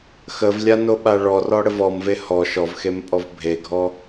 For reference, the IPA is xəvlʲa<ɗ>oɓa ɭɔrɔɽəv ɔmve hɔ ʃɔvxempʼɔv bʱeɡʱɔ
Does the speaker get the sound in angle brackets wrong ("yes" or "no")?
yes